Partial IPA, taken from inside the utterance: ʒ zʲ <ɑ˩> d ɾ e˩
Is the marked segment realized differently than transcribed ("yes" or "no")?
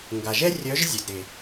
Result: yes